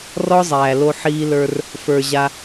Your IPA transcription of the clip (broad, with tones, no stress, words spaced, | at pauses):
rɔ˦zˤæː˨lo˧ ħiː˧lə˞˧r | fə˞˨ ʑa˧